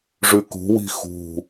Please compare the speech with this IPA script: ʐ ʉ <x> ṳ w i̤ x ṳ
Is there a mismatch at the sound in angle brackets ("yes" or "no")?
yes